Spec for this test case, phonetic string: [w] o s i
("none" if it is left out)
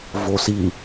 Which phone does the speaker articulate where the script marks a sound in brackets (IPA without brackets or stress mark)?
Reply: v